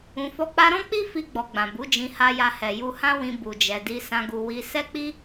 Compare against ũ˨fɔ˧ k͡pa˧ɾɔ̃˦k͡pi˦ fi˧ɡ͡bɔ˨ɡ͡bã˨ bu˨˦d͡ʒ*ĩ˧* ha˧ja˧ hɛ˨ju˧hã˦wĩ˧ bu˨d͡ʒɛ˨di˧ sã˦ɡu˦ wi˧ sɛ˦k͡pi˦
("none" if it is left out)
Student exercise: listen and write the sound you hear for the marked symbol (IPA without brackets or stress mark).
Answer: ĩ˧